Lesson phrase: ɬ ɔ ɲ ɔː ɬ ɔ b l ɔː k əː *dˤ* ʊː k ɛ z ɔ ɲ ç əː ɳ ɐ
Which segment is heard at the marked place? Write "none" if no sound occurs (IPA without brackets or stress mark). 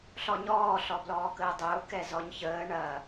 dˤ